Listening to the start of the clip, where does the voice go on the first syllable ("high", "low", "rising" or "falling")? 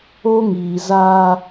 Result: high